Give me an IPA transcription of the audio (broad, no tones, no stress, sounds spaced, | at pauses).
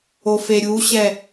o f e ɾʲ u ɕ ɛ